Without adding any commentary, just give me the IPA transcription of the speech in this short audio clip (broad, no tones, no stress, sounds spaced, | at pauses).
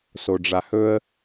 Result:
s o ɖ͡ʐ a h ɵ ə̯